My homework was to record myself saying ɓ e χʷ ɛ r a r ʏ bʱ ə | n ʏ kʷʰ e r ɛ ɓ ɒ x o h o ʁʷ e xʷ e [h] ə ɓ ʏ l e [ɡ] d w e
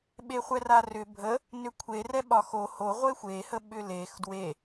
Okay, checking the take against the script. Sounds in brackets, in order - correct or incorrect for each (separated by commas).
correct, incorrect